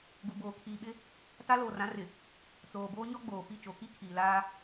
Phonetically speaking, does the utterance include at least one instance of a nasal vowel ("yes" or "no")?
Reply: yes